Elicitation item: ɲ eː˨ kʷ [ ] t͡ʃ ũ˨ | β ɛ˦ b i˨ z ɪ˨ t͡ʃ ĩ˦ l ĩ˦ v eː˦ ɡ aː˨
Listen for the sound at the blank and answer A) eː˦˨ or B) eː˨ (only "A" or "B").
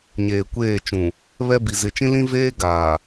A